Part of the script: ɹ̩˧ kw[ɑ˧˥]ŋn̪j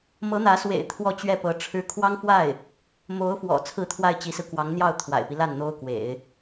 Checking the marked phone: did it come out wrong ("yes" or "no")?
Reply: no